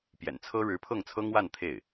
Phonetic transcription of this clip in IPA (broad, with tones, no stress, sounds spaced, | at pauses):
p j ɛ̰˨˩ n t͡sʰ ɤ˥ ɻ ɻ̩˧˥ pʰ ɤ˥˩ ŋ t͡sʰ ɤ˥ ŋ w a˥˧ n t̪ʰ e˥˩ ɪ̯